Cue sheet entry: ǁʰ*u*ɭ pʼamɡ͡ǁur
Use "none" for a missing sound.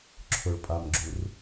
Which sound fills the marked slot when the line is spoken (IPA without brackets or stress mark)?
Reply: ʊ